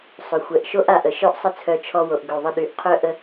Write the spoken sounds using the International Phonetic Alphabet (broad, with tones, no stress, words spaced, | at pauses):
sˤœ˨xʷɛ˨ʔʃo˦ʔ a˨ʔə˨ʃœ˦ʔ sˤə˧t͡sʰœ˨ t͡ʃʰɔ˧wo˨ʔɡø˨ ðˤə˧ɗy˨ʔqʰœ˦ ʔə˧